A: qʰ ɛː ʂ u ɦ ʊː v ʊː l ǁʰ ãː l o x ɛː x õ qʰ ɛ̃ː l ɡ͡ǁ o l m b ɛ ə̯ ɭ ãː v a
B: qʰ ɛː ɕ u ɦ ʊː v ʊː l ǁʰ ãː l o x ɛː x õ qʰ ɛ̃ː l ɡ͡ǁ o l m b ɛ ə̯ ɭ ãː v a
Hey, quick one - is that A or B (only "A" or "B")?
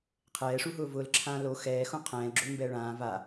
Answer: A